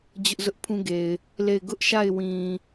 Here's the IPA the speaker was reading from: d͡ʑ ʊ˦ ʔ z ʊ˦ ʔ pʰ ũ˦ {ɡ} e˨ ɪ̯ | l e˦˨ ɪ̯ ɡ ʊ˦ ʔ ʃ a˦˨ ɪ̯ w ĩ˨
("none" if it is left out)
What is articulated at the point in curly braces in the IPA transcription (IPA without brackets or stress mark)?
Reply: ɡ